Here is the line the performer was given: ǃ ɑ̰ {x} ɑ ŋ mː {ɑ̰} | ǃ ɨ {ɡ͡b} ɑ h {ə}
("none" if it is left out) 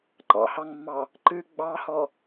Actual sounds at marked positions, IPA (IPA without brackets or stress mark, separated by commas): h, ɑ, ɡ͡b, ɔ